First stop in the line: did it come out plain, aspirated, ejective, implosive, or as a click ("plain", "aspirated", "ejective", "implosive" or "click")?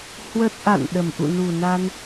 plain